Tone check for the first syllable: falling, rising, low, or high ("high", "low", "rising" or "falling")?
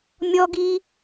high